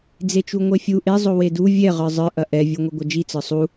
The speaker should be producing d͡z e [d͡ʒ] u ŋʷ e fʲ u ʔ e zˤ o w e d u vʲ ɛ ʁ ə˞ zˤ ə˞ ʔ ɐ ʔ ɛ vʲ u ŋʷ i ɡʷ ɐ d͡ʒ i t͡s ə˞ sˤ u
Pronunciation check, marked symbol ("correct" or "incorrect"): incorrect